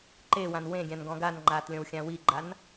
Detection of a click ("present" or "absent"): present